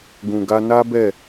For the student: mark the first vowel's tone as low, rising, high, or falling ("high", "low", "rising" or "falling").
low